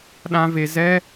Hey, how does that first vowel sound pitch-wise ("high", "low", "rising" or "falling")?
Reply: high